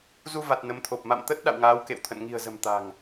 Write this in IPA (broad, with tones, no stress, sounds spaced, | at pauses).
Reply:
z u˧ v a˨˩ t̚ n ə˨˦ m t̪ʰ o˨˩ p̚ m a̰˧˨ m t̪ ə˦˥ t̚ ɗ a̰˧˨ w ŋ aː˨˦ w k ḛ˧˨ w t̪ʰ ə̰˧˨ n ŋ i̤˨˩ ə̯ z ə̤˨˩ m t̪ a̤˨˩ ŋ